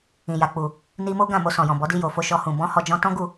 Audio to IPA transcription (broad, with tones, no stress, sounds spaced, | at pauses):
ĩ˨ j a˨ k͡p u˨ | n i˧ m o˦ ɡ ã˦˨ m o˧ s ɔ̃˨ j ɔ̃˨ b ɔ˨˦ d i˧ j o˨ f o˧ ʃ ɔ˧ h ũ˨ b ɔ̃˧ h ɔ˧ d͡ʒ ɔ̃˧ t ɔ̃˦ ɡ u˦˨